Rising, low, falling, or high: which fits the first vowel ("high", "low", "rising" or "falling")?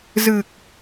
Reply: low